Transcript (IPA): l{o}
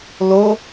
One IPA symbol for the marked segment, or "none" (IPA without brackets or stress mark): o